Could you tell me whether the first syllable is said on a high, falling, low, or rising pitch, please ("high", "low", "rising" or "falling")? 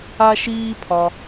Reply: high